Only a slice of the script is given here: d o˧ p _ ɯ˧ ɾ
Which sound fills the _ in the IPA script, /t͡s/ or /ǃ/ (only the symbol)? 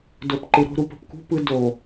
ǃ